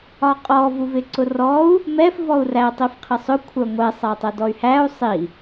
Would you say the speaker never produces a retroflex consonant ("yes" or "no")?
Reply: yes